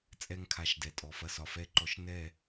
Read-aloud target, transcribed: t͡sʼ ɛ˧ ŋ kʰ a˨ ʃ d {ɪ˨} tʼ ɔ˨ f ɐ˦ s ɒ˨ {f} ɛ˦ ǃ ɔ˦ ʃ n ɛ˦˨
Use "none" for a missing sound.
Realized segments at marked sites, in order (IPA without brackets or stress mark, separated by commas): ɛ˨, f